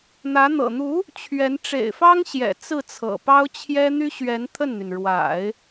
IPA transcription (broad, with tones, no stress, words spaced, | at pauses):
n̪ä˧˥n̪ɤ̰˨˩ n̪u˧˥ | t͡ɕʰɥɛ˧˥n ʈ͡ʂḛ˨˩ɪ̯fɑ˥ŋɕjɛ̰˨˩ t͡sɹ̩˥˩t͡sʰɤ̰˨˩ pɑ˥ʊ̯t͡ɕʰjɛ˥ n̪y˥ɕɥɛ˧˥n t̪ʰə˥˩nn̪y˩n ɻwa̰˨˩˦ɪ̯